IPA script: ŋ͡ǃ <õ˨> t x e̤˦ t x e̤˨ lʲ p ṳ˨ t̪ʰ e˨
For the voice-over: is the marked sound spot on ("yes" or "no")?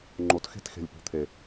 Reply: no